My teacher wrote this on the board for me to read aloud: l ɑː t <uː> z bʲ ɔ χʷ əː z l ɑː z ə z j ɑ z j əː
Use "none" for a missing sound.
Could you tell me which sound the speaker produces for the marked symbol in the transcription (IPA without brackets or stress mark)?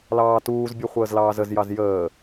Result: uː